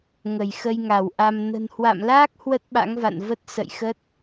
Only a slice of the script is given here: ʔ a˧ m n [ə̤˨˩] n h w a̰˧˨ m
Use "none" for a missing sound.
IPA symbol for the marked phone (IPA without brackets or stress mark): ə̤˨˩